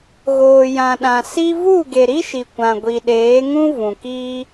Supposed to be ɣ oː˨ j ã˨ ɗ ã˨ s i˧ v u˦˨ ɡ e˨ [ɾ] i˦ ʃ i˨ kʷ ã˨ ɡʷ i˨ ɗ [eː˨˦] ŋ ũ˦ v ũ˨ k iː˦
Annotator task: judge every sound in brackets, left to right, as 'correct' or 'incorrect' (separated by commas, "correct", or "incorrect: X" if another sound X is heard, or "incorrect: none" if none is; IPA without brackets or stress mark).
correct, correct